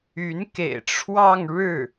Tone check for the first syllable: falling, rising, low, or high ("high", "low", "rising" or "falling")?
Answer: rising